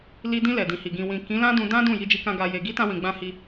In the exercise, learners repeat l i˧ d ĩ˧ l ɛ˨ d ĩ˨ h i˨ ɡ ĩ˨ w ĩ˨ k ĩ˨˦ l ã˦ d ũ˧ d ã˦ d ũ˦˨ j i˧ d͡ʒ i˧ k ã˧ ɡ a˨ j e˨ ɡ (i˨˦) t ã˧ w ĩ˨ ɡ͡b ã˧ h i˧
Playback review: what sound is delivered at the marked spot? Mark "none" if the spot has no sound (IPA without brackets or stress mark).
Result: i˨˦